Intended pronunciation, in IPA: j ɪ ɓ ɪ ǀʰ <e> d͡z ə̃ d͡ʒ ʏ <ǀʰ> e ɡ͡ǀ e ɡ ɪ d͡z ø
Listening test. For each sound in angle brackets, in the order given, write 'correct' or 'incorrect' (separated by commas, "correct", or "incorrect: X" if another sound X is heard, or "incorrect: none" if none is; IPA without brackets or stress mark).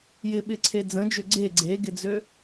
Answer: correct, incorrect: ɡ͡ǀ